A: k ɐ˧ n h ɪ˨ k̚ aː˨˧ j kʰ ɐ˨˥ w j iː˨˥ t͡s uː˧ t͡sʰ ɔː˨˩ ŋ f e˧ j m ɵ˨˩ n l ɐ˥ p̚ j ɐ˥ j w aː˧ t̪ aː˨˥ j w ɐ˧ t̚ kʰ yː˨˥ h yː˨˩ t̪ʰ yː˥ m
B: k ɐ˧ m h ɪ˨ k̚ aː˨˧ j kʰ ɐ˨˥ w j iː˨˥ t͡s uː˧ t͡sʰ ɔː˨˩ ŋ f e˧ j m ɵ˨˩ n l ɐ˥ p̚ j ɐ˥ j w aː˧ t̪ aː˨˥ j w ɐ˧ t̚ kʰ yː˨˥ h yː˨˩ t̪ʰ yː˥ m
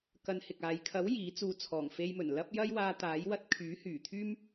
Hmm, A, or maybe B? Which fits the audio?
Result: A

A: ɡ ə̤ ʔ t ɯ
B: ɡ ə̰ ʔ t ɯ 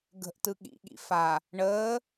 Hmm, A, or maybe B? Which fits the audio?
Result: A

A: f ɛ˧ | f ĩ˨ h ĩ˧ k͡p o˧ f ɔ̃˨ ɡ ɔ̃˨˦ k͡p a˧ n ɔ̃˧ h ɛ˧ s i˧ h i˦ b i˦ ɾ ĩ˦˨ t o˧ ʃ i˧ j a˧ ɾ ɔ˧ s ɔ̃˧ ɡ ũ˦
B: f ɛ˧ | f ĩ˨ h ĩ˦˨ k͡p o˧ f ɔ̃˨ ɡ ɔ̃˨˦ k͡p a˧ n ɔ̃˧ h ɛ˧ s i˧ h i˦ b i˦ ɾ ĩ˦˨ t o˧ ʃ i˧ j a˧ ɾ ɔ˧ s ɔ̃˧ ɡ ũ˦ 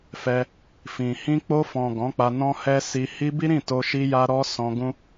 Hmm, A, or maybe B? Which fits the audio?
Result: A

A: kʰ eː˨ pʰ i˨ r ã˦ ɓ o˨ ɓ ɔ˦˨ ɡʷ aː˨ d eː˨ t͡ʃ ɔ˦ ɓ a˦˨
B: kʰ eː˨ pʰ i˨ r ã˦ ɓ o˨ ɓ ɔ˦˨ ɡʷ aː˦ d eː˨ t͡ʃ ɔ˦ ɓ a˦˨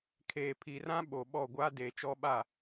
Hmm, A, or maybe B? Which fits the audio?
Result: B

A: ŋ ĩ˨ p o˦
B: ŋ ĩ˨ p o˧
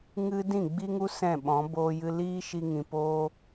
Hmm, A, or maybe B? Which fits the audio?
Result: A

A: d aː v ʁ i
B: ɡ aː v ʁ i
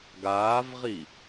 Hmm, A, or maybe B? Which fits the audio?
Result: B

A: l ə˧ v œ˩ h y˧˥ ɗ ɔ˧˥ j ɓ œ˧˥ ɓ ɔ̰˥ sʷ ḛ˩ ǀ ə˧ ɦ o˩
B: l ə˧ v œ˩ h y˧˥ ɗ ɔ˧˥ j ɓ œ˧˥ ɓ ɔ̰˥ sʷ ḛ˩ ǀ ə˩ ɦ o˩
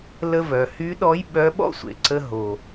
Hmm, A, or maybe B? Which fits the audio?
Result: A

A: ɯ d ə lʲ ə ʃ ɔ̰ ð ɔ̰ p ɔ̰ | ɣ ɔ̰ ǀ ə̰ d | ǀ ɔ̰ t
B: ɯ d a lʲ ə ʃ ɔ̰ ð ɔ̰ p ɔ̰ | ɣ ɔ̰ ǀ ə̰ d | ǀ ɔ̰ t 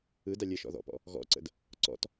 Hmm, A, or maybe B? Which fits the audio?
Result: B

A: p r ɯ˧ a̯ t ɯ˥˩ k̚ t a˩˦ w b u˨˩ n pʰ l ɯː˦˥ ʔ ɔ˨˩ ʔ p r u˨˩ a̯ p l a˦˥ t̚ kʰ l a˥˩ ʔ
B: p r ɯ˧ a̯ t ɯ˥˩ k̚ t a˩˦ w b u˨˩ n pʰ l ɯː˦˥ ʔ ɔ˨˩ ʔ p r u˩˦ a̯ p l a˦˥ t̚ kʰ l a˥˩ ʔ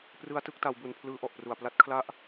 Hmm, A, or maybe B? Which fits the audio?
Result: A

